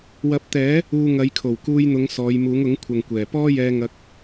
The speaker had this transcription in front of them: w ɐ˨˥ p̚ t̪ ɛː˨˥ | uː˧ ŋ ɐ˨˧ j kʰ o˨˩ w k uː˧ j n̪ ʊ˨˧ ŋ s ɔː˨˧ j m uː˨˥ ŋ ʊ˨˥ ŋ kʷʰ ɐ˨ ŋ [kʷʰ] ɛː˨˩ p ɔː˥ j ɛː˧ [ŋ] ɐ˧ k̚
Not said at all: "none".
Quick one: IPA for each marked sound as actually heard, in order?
kʷ, ŋ

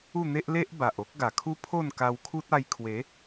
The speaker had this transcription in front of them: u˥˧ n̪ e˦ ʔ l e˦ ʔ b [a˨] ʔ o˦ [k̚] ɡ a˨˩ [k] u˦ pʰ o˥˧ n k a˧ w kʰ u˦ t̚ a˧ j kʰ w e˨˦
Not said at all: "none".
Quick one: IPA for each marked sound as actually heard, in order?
a˨, k̚, kʰ

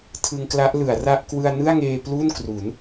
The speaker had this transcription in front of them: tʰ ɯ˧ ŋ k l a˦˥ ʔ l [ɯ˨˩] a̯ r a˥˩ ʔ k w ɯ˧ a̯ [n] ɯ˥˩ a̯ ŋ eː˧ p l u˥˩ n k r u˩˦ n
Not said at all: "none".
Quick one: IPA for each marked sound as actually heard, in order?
ɯ˩˦, n

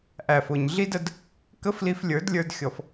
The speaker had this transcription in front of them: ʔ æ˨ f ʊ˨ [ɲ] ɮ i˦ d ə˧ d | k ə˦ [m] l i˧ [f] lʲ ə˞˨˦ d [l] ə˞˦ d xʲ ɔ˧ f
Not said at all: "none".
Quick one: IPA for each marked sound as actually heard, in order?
ɲ, f, f, lʲ

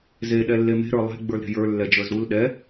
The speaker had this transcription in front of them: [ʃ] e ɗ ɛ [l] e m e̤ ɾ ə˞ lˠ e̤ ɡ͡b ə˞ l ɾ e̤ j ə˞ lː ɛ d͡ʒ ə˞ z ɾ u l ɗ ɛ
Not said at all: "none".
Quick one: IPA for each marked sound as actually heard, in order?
z, lː

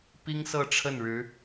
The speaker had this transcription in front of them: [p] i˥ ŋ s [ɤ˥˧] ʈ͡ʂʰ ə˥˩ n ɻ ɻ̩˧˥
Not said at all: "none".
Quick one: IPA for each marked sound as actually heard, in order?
p, ɤ˥˧

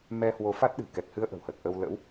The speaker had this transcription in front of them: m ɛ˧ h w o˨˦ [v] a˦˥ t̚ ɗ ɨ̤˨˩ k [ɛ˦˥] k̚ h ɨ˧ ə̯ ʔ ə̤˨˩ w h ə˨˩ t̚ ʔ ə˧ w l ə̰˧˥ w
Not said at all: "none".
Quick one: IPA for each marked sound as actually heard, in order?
f, ɛ˨˩

